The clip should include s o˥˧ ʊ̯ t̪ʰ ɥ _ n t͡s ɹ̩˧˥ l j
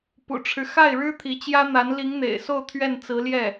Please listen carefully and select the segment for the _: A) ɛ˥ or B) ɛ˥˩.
B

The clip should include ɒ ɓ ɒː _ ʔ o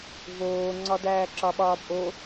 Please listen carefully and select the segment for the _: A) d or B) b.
B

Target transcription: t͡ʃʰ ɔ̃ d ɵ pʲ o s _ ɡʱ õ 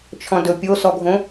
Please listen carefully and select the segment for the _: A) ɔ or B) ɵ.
A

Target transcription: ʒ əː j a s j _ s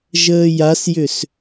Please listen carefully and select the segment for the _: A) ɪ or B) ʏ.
B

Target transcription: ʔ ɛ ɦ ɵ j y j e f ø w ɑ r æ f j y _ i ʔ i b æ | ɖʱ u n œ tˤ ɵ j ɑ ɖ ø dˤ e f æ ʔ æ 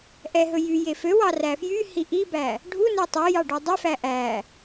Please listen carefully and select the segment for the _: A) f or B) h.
B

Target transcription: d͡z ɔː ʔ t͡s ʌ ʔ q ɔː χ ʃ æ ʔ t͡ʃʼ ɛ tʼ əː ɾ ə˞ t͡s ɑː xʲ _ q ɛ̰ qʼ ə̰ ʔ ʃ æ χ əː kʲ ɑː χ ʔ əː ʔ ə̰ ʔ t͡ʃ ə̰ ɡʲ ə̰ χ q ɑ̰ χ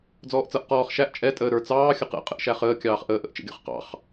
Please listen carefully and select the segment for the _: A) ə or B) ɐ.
A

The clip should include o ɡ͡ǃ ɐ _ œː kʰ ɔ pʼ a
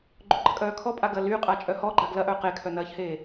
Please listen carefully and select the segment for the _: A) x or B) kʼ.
B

